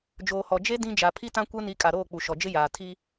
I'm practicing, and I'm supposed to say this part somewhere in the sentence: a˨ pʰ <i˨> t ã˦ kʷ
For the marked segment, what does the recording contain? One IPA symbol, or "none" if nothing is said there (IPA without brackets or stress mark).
i˦